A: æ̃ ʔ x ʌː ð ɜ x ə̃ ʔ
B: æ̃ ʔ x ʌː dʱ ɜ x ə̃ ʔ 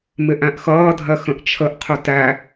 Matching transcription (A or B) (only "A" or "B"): B